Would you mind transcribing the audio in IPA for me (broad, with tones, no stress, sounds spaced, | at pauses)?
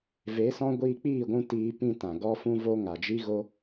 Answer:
v e˨˦ s ɔ̃˦ ɡʷ iː˧ k͡p iː˦˨ ɡʷ ũ˧ t iː˧ p ĩ˧ t ã˨ ɡ ɔ˧ f ũ˦ v o˦ ŋ a˨ d͡ʒ i˦ ɣ o˦